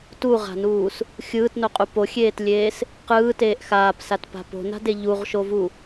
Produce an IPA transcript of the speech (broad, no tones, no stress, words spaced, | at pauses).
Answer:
tuʁa̤nuːs | xʲɯːtnoqʼu poxʲeːtlʲeːs | qɯːteːʔ xaːpsatpa̤ po̤na̤de ʎuʁʃovu